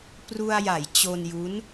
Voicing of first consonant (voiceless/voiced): voiceless